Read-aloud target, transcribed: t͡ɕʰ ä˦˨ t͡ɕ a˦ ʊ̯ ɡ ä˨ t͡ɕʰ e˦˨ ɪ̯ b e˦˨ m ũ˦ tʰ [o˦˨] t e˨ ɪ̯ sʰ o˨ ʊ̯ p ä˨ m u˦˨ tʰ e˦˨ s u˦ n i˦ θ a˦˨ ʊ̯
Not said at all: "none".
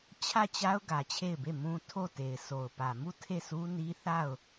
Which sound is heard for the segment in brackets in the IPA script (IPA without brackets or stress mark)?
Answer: o˦˨